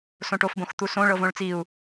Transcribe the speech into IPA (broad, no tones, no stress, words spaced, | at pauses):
sõʈofbõxt̪u sõ ɭɤvõɭt͡siu̯